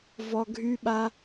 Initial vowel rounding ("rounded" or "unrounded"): rounded